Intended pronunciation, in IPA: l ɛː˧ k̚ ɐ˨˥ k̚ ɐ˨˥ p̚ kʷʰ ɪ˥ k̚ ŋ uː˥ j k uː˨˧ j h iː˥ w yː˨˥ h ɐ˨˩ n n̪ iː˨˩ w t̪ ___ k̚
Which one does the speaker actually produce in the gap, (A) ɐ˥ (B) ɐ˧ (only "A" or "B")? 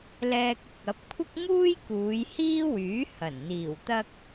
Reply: A